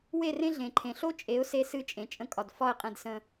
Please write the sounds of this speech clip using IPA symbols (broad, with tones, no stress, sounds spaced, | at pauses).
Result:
w e˦˨ r ẽ˦ ɮ ẽ˨ ǃʰ ẽ˨ ɬ o˦ t͡ʃʼ e˨˦ ʊ̯ s e˧ s ɨ˧ t͡ʃʼ ẽ˨ t͡ʃʼ ə̃˧ kʼ ɒ˨ d f ɒ˦˨ ɪ̯ qʼ ẽ˧ d s ə̃˧